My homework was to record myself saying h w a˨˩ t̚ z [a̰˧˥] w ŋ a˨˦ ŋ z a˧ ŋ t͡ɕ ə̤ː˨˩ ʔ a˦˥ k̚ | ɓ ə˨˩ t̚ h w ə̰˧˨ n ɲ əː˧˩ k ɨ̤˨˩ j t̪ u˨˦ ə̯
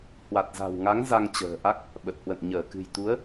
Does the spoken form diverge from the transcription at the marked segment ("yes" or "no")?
yes